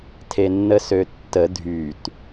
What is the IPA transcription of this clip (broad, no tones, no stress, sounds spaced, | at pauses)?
tʰ e nː ə s ø tː ə dʱ y t